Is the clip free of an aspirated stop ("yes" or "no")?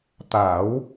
yes